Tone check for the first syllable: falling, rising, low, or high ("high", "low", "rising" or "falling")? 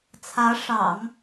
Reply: rising